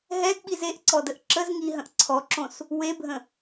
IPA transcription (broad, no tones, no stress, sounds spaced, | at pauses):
ɦ ɛ d ɓ i z e ʔ ǀ ɔ d ə ʔ ǁ ə z ŋ i ɦ ə̃ ʔ ǀʰ ɔ ǁ õ s | w e bʱ ə̃